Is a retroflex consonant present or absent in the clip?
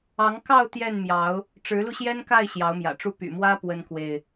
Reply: present